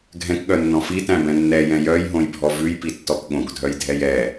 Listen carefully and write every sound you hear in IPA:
ɡʱɛ̃kɠœnːɔ̃ fitæ̃bɛ̃ nːɛjɛ̃ jœjɦõjbʱɔ vʉjpitːɔk ɠõkdʱœjdʱɛj ɛ

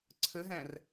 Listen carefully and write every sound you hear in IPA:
ǀʰəɦæ̃r

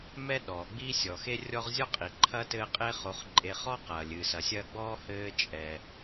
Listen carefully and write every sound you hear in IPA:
mɛ˦ ɗɔː˩ɡ͡bi˥sʲɔ˨ xe˦rʲɔ˦ʁzʲɔ˥qʼi˩ ǃʰɐ˥tɘː˦ qʼe˦χo˨χ ǃʼe˨ χɔ˥qɐː˩lʲɨ˩ sɐ˨sʲɐː˦ɡ͡bɔː˥hɘː˦ t͡ʃʼɛ˩

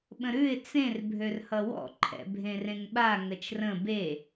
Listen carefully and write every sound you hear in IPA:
ɓə̃ɾʉɪ̯ t͡sẽr bʱørhʌwɔ̰ ǃʰɛ̰bʱẽrẽŋɓa ŋət͡ʃrə̃ be

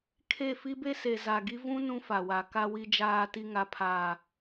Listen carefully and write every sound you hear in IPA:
kʰe˦˨ fi˦be˦se˨ za˨ɡi˦ vũ˦ nũ˦fa˨wa˨ ka˨wi˨d͡ʒaː˨ti˨ ŋa˨pʰaː˨

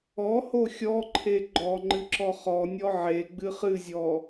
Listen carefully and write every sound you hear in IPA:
ɔho xʲɔǃʰe ɡ͡ǃɔ ŋ͡ǃɨǁɔχɔnʲɔ ʕe ɡ͡bɨχɨzʲɔ

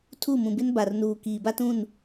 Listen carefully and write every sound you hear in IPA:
tʰu˦˨mũ˨bɪ˦n ba˨rnuː˨ kiː˨ba˦tũ˦˨n

